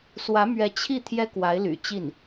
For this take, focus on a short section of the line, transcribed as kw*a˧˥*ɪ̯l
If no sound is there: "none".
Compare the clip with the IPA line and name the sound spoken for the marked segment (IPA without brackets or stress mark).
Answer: a˧˥